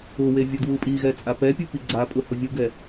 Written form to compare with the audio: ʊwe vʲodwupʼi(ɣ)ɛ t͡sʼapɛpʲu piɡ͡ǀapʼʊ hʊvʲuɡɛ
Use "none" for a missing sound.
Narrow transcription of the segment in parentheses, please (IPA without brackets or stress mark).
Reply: ɣ